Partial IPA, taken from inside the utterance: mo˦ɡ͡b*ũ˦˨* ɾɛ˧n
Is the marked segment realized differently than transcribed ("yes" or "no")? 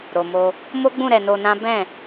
no